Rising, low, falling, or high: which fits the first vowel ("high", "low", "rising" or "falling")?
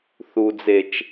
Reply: low